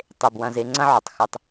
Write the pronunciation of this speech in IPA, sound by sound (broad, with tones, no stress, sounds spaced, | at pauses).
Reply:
tˤ e˨ b w ɐ̃˦˨ z e˦ ŋ͡ǀ ɐ̃˦ ʕ ɵ˨ tˤ x ɨ˦ tˤ